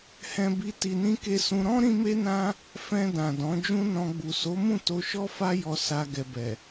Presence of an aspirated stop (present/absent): absent